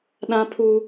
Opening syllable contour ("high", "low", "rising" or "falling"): high